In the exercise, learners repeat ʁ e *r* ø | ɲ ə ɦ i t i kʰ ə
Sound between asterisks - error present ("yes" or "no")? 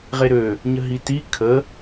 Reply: yes